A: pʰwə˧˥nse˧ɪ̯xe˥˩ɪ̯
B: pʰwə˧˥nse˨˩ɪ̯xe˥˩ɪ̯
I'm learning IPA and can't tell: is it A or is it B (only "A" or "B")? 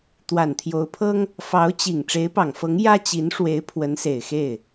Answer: B